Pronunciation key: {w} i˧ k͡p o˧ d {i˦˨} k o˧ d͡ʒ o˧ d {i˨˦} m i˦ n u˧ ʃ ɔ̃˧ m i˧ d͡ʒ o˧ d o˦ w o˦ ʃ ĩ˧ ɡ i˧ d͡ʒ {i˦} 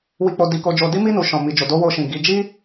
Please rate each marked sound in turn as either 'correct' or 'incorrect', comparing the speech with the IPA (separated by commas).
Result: correct, incorrect, incorrect, correct